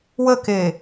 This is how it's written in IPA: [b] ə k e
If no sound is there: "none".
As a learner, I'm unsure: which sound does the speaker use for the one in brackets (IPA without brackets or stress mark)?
w